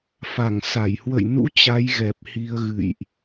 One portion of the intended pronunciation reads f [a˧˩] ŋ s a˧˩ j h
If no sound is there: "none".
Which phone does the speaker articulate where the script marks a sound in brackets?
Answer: a˧˩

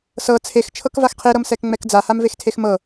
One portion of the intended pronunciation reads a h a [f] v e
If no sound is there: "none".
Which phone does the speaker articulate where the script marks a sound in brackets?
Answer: m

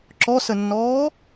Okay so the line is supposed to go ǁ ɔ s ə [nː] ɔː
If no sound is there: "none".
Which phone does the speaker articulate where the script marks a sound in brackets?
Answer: nː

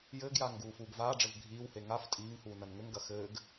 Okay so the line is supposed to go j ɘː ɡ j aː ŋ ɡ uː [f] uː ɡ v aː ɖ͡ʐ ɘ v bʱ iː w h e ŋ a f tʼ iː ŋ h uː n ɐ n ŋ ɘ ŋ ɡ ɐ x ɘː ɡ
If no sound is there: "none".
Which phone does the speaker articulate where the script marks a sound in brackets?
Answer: f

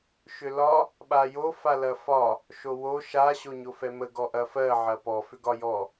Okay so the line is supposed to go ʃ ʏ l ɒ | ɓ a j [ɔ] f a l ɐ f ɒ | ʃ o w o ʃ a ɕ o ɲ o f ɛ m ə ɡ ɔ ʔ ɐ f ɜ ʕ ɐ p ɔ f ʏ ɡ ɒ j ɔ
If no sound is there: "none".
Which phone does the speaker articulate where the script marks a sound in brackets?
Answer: o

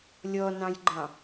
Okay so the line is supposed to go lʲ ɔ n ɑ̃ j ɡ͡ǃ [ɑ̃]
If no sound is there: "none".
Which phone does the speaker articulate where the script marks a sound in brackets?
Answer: ɑ̃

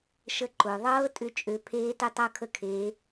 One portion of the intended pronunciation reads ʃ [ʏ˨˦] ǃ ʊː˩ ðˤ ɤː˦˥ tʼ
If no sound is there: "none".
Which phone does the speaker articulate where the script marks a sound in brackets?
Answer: ə˨˦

